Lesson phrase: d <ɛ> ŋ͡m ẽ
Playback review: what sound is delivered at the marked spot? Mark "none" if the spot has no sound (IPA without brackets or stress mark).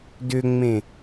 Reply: ʏ